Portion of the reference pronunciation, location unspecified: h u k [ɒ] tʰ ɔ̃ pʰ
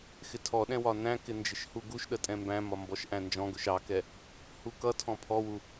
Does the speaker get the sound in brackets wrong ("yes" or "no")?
yes